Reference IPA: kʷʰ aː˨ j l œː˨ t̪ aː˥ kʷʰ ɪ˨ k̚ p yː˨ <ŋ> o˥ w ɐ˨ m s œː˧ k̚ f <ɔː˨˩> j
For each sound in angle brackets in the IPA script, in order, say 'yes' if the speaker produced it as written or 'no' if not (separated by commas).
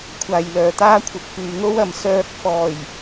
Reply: yes, yes